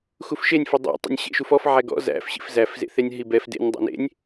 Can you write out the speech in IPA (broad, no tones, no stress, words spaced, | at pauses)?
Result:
xufʃenʲ fʊdˤḛ tˤɛ̰nʲɕḛʃufɔf ʕæɡɔ̰ zæ̰f ɕḭfzæf zḛθenʲɦibɛf dḛnʲ dˤɛ̰nḛnʲ